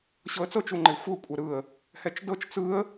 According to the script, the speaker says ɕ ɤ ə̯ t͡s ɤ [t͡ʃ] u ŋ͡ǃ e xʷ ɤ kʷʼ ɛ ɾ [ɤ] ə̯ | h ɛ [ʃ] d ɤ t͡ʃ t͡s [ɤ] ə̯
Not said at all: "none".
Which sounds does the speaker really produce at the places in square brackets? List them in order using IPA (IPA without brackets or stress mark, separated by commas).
t͡ʃ, ɯ, t͡ʃ, ɯ